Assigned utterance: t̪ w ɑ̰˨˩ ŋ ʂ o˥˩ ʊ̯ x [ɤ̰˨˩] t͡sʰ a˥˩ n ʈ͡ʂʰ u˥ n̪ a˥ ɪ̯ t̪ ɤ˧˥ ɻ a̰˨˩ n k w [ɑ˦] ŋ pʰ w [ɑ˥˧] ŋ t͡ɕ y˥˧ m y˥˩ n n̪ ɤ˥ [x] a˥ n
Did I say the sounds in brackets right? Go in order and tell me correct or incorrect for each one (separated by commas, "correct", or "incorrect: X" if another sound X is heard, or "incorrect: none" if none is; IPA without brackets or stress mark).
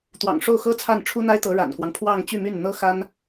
incorrect: ɤ˥, correct, correct, correct